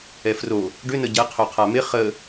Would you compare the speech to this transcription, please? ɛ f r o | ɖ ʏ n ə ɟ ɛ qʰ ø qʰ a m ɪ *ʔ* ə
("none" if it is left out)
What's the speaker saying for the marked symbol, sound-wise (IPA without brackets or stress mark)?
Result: χ